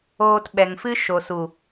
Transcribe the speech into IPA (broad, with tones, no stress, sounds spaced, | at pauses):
oː˧ t ɓ ɛ˨ ŋ f ɨ˦ ʃ o˨ s u˨